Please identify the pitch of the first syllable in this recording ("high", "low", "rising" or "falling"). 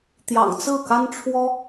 low